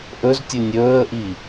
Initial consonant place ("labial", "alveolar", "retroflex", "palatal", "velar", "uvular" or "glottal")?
glottal